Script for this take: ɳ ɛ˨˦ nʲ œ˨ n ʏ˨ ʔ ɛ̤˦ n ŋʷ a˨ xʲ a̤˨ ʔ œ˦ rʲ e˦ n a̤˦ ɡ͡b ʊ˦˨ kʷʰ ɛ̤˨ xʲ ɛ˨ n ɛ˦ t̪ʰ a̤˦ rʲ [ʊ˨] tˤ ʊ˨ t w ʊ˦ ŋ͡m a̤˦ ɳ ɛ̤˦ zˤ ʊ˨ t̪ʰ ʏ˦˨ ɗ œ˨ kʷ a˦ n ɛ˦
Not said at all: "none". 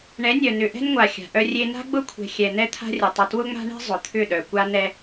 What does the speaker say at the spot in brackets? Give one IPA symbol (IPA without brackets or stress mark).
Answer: ʊ˨